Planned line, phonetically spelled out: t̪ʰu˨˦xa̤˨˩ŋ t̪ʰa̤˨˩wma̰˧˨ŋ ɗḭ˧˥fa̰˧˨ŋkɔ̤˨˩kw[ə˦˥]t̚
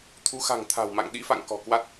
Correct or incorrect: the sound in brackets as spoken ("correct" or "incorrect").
incorrect